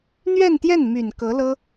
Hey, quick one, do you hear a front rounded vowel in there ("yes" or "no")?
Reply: yes